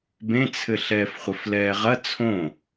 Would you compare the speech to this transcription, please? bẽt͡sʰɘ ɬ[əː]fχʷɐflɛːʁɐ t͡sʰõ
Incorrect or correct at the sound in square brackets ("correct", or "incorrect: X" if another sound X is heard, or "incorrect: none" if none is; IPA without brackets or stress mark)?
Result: incorrect: ɛː